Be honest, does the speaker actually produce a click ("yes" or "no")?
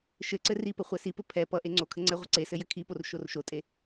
yes